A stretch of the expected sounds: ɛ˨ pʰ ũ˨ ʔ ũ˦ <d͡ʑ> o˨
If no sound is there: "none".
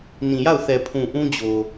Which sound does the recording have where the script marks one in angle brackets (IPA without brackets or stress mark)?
d͡ʑ